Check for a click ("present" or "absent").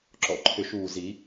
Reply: present